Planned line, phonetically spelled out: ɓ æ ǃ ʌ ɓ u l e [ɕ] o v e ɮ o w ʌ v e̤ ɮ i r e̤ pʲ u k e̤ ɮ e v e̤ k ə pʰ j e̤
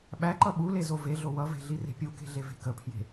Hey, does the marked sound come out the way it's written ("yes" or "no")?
no